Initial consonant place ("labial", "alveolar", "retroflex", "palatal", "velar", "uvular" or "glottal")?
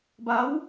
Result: labial